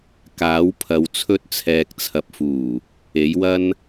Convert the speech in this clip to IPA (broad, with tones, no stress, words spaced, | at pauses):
kaː˨˥wpʰɐ˨˧w t͡sʰɵ˧t̚t͡sʰɛː˨k̚t͡sʰɐ˨p̚fuː˨˩ | e˨˥jwɐ˥n